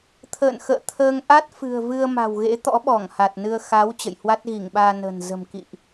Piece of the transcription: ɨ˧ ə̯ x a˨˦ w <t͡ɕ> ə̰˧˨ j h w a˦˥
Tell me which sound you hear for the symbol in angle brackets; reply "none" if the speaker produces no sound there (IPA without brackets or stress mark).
t͡ɕ